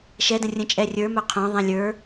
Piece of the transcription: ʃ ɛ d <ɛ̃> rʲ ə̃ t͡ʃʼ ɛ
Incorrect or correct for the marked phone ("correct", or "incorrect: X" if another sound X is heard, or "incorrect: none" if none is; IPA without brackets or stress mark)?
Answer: incorrect: ə̃